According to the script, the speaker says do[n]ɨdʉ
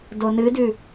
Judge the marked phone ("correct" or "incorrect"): correct